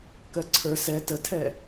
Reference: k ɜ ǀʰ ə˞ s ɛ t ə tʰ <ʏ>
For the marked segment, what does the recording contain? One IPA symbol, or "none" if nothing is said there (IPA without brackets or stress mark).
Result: ɛ